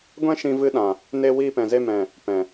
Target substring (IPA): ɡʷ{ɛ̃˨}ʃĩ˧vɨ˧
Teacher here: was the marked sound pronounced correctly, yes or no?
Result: no